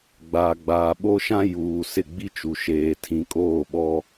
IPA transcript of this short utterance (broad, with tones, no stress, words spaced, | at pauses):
ɡ͡baː˨ɡ͡baː˨ɓo˦ʃã˦ juː˨ sɪ˦˨ɡ͡bi˦t͡ʃu˨ ʃeː˨tʰĩ˨kʼoː˦˨ɓɔ˦